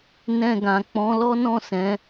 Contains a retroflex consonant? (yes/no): no